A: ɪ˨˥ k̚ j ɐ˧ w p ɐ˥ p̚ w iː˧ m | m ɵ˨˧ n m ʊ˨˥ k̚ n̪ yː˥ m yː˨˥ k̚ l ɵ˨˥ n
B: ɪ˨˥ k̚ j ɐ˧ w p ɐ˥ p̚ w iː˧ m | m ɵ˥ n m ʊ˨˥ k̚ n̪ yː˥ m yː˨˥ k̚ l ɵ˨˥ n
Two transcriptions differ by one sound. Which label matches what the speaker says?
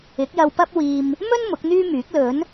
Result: B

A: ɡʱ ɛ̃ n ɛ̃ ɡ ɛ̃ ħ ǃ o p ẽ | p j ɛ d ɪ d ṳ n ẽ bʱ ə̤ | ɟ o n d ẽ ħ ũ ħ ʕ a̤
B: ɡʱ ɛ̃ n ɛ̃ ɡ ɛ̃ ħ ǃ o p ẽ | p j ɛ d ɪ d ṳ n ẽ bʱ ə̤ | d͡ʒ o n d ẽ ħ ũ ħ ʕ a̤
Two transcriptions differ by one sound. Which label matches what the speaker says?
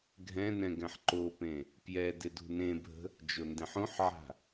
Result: B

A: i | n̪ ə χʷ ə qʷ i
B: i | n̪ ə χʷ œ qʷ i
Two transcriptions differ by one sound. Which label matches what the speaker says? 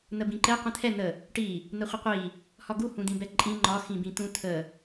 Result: A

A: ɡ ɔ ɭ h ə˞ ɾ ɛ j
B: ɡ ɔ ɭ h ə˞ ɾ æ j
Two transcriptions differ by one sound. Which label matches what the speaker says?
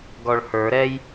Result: A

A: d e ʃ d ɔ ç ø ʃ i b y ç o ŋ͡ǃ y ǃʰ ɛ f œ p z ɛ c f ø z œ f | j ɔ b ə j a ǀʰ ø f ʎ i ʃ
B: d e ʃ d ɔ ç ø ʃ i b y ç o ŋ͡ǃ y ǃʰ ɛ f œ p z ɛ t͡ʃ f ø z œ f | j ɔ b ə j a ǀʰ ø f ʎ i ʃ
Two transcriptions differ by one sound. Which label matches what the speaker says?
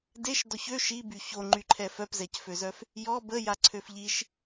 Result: A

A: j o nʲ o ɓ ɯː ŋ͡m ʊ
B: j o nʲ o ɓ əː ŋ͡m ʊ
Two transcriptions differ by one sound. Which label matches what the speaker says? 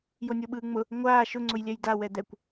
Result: A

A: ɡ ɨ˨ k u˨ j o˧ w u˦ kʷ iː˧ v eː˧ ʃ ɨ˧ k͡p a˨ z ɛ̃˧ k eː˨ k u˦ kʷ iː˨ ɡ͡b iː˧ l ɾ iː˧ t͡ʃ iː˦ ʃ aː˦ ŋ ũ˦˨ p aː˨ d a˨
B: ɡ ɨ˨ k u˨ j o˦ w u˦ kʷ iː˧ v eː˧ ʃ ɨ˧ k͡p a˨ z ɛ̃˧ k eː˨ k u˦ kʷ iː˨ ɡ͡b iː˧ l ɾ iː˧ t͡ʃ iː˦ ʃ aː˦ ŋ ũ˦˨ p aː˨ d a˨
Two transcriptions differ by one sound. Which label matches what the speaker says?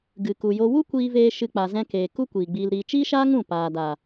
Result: A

